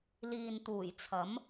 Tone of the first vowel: low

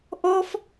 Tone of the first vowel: high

